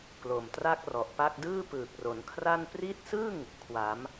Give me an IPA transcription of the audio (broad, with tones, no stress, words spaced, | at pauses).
klo˨˩mtra˥˩k̚rɔ˨˩ʔpa˥˩k̚ dɯː˥˩pɯː˨˩k̚ro˨˩nkʰra˥˩n pri˦˥t̚sɯ˥˩ŋ | kʰwa˩˦m